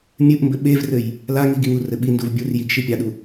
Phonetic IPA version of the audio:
mʲ ɨ ʔ m b ɘ ɓ e v r ɘ j | l a ŋ i ɡ i ŋ u r ɘ ɓ i n d u v bʲ u r j i ɡ ʃ i pʲ a ɗ u

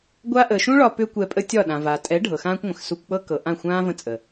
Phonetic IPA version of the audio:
ɡʷ a˦ ʔ əː˨ ʃ ũ˦ ɭ ɒ˧ p ʏː˦ kʷ ɛ˧ pʼ ə˦ tʲ ɒ˦˨ ɗ ã˨ v a˨ tʼ ɛ˨˦ ɖʱ ɤ˨ x ãː˦ kʷ ŋʷ ə̃˨ x s u˧ kʷ k͡p ɤ˦ k ɤ˨ ʔ ã˦˨ xʷ ãː˦ v ə̃˦ t͡sʼ ə˨

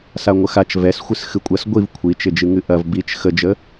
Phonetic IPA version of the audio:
s a ŋʷ ə x a t͡ʃ v ɛ s xʷ ɨ s x ɨ kʷʼ ɐ s ɡʷ i v kʷʰ i t͡ʃ ɪ d͡ʒ ɨ ŋ ɨ ʔ ɐ v b i t͡ʃ x ə d͡ʒ ə

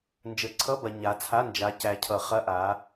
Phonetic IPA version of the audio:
n d͡ʒ ə˨˩˦ ǀʰ ʌ˧˥˧ b ɐ˨ ɲ a˨˦ t͡sʰ a˧˥˧ n d͡ʒ a˨˦ c æ˨ cʰ ʌ˨˩˦ χ ɐ˧˥˧ ʔ a˨˦

